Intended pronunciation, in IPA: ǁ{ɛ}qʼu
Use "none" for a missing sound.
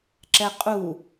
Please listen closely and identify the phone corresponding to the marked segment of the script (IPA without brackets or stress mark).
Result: ɛ